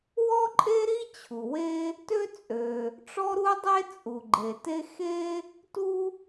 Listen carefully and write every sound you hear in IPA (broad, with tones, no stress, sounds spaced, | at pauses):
w ɔ˥ ǃʼ e˥ ɾ i˥ t͡ɕʰ u˩ w e˥ | t ø˥ t͡sʼ ø˩ | ʈ͡ʂ ɔ˥ ɾ u˥ dˤ e˥ t͡sʼ u˩ ɡ͡ǃ e˩ t e˥ x e˥ | t u˥